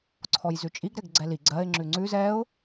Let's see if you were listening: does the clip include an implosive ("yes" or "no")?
no